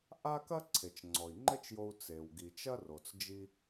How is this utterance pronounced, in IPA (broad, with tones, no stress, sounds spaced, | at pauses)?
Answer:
ʔ a˥ k ɐ˥ ǀʰ e˩ t͡ʃ ŋ͡ǀ ɔ˩ i̯ ŋ͡ǃ ɘ˥ t͡ʃ j o˧ u̯ t͡s e˩ w ɡ i˩ t͡ʃ ɐ˥ r o˩ t͡s d͡ʒ i˧